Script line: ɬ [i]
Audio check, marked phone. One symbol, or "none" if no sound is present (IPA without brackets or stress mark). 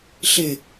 ɪ